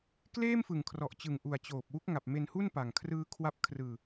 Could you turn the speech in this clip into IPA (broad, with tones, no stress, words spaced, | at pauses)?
kleː˥˩mfɯ˨˩ŋkʰrɔ˨˩ʔt͡ɕɯ˨˩ŋ ʔu˨˩a̯t͡ɕoː˨˩p̚wu˦˥k̚ŋa˨˩p̚ me˧nhu˥˩npa˨˩ŋ kʰrɯː˦˥kʰwa˦˥p̚ kʰrɯː˧